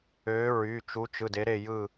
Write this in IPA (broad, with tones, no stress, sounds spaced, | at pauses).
ø˨˦ ɹ y˩˧˩ t͡ʃ u˨˦ t͡ʃ ɯ˩˧˩ d e˨˦ ɾ e˦˨ j ɯ˦˨